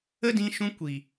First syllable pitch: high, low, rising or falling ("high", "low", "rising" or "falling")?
high